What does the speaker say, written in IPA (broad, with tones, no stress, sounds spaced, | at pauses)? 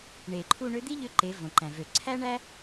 ɳ e˩ ǃʰ u˧ ɳ ø˧˥ d̪ i˥ ʎ ø˧˥ ǃ e˩˧ v õ˩ ǃ æ̃˩ v ø˩ ǀʰ æ˥ ɳ æ˥